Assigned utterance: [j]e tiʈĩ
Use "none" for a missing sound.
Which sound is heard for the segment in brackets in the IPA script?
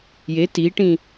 j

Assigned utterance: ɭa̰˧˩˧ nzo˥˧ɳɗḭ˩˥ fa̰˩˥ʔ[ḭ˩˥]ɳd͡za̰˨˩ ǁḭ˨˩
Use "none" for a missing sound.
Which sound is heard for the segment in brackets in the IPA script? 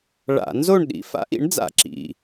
ḭ˩˥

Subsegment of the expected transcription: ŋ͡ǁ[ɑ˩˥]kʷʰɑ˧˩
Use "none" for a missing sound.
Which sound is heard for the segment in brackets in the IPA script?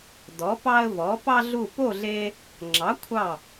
ɑ˩˥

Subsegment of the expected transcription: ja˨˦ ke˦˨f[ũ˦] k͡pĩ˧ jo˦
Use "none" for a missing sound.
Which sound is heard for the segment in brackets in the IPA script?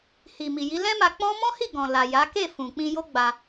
ũ˨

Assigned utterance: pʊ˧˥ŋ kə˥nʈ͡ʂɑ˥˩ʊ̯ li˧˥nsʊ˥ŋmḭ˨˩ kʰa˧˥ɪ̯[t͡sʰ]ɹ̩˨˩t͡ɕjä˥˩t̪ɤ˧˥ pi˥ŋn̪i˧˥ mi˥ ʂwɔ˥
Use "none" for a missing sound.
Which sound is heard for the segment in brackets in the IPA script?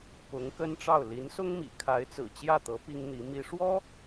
t͡s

